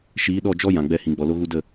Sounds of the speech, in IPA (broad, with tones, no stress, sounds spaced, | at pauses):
ʃ iː˨˦ ɗ ɔ˦˨ d͡ʒ ɔ˦ j ã˨ ɡ͡b ɛ˧ h ĩ˨ ɡ͡b ɔ˨ l o˦ ɣ u˧ d ə˦˨